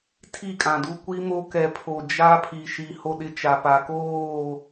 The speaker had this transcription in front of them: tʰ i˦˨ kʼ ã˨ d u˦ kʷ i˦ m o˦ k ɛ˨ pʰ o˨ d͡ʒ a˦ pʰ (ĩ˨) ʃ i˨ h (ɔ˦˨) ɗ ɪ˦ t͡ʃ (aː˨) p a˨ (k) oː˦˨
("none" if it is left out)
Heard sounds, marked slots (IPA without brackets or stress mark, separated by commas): i˨, o˦˨, a˨, k